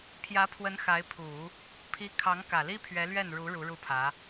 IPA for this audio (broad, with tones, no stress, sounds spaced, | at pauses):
pʰ j ä˧˥ pʰ w ə˧˥ n x a˧˥ ɪ̯ pʰ u˨˩˦ | pʰ i˥ kʰ ɑ˧˥ ŋ k ä˨˩ l i˥ pʰ ɥ ɛ˧˥ l ɥ ɛ˥˩ n ɻ u˧˥ ɻ u˧˥ ɻ u˥˩ pʰ ä˧˥